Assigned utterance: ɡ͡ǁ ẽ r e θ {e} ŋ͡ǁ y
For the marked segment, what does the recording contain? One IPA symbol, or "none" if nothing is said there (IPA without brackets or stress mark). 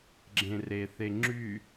e